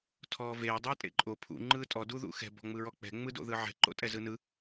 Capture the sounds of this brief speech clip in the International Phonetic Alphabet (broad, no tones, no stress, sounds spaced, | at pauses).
tʰ ɔː v eː dˤ ɯː tʼ ḛ ǃʼ o pʰ ṵ ŋ͡ǃ ɯː tʼ ɔ d u ð ṵ x ɛ̤ b ɔ̤ ŋ͡m ɯ ɹ ɔ k͡p ɛ̤ ŋ͡m ɯ d o̰ ð ɯ ʕ ɛ̤ ǃ o̰ tʼ ɛ z ɯ n ɯ